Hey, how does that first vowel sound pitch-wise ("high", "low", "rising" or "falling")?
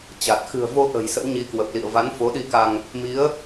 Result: low